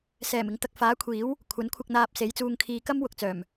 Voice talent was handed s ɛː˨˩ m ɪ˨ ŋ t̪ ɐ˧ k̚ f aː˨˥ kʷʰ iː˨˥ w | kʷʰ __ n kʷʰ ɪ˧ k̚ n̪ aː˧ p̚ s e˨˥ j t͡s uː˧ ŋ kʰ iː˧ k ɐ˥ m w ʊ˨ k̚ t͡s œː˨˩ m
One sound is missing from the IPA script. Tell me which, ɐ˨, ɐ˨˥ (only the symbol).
ɐ˨˥